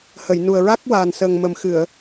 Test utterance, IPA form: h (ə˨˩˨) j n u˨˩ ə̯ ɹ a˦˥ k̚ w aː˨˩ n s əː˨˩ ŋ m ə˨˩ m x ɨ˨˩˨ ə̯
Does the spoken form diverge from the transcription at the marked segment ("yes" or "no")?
no